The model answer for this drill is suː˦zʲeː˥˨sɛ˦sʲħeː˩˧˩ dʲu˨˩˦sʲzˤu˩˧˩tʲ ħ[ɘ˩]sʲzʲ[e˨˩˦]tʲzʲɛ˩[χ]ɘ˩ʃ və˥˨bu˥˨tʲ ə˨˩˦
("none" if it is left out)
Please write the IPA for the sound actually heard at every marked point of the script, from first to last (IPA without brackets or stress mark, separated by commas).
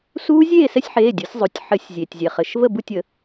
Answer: ɘ˨˩˦, e˩, χ